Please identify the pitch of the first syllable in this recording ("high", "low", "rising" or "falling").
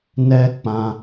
high